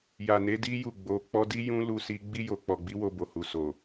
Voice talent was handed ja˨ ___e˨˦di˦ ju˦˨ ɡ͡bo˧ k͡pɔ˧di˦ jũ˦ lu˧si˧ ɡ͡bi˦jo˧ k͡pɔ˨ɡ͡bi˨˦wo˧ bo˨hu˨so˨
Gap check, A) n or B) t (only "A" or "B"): A